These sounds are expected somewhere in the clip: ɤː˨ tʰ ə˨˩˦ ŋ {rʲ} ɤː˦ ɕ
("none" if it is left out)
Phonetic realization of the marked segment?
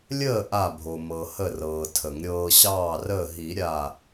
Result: ɾʲ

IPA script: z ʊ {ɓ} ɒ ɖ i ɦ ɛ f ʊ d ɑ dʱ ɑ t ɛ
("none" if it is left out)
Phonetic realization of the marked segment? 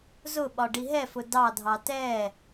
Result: ɓ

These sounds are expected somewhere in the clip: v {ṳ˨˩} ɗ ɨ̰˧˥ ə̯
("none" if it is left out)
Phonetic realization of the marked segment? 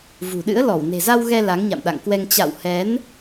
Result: ṳ˨˩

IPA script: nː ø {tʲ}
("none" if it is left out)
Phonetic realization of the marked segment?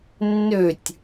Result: tʲ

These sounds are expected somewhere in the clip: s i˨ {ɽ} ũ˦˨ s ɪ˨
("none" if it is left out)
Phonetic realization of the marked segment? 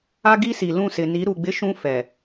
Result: l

